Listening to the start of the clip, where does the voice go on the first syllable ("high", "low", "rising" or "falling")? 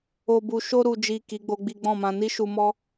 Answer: low